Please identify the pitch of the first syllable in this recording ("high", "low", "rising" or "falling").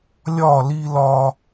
falling